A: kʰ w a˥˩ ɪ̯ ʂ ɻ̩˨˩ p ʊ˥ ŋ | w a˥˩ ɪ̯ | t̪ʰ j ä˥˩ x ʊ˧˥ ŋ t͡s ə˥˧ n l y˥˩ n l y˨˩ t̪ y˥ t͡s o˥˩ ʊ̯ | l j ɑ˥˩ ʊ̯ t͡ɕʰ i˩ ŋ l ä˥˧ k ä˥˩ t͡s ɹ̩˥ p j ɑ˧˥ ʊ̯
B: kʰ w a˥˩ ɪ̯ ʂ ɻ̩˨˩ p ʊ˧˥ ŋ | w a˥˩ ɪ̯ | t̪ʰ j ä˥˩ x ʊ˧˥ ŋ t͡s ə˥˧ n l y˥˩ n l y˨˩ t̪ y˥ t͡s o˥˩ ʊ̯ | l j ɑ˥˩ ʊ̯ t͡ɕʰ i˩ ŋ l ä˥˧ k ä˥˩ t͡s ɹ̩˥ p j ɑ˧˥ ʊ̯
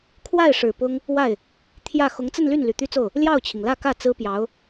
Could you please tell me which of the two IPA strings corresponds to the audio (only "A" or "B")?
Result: A